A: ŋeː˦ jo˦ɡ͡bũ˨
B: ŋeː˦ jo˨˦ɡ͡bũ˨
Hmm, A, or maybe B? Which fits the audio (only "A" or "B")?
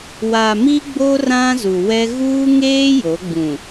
B